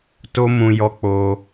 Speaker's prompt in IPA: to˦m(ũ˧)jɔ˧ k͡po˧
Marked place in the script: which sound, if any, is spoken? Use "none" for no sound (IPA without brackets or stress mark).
ũ˧